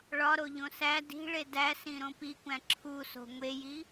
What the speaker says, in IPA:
ɭ ɒ ɾ o ʎ õ s æ d i̤ ɭ e d æ s ĩ ɾ õ p i kʷ æ̃ ǁʰ u s o̤ ŋʷ e j i

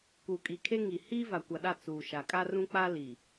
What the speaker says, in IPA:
k uː˨ kʼ i˨ kʰ e˦ ŋ i˨ h iː˦ v a˨ kʷ a˨ ɗ a˦˨ t͡s uː˨ ʃ a˨ kʼ a˦ r ũ˦ k͡p a˦ l i˨

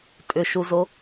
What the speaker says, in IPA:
tʼ ʏ ʃ u z o

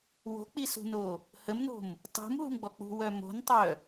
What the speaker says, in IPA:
w o̤ k͡p i s ṳ n o | h ə m n o̤ m | tˤ ṳ m ɦ ṳ m ɡ͡b ɔ k͡p ṳ w œ m o̤ n tˤ œ

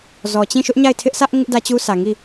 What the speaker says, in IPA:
z ɔ˨ t͡ɕ ĩ˦˨ ʃ ʊ˦ ʔ ɲ a˦˨ ɪ̯ tʰ ɪ˦ ʔ sʰ ä˦ ʔ ŋ ɪ˦ ʔ d ä˦ t͡ɕ u˦ sʰ ä˨ ŋ i˦˨

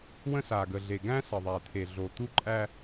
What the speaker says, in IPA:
w ə̃˦ s a˨ ɡ ə˨ ɮ e˨ ɡ æ̃˦ s ə˨ ðˤ æ˨ t̪ʰ e˨ ɮ o˨ t̪ u˦ ǃʼ æ˦

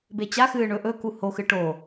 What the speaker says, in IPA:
b e t͡ɕ a x ɨː ɳ ɵ ʔ ɵ k u h o x ɨ ʈ o

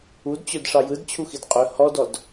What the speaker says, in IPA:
u d t͡ɕ ɵ d ʂ ɑ j ɯ d t͡ɕʰ u x i d qʼ ɵ h ɔ d ɔ d

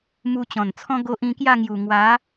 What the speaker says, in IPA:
m u˧ t͡ɕ ɔ̃˨˩ n t͡sʰ ɔ̃˦ ɡ o˦ ʔ ĩ˧ k j a˥˧ ŋ j u˨˩ ŋ w a˨˦

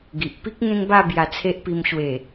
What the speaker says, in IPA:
ɡ i˨ ʔ p i˦ k̚ ŋ ẽ˦ ŋ b a˥˧ b j a˧ t͡sʰ e˦ ʔ p i˧ m ɕ w e˨˩

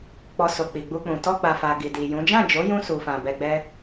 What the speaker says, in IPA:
k͡p ɔ˨ s o˨ k͡p i˨ ɡ͡b u˧ k͡p ũ˨ t ɔ˧ ɡ͡b a˨ f a˨ ɡ i˨ d i˨ j ũ˨˦ d͡ʒ ã˦˨ d͡ʒ o˨˦ j ũ˧ s u˨ f ã˨ b ɛ˧ ɡ͡b ɛ˦

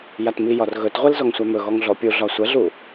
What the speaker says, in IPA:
j a t m i j ɒ r ɣ ɵ t ʁʷ e l z ɔ ŋ sʷ a m ɵ ɣ ɔ ŋ ɮ ɔ pʲ u ɮ ɒ sʷ ɛ ɮ u

